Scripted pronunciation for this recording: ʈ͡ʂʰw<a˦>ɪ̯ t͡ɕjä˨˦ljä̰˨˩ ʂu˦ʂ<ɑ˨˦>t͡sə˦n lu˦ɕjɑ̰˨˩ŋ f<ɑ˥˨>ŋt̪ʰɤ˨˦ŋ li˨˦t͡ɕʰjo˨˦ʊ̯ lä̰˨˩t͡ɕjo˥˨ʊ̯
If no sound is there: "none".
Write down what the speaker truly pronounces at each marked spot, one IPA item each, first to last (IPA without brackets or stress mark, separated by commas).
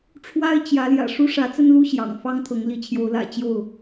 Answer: a˦, ä˨˦, ɑ˦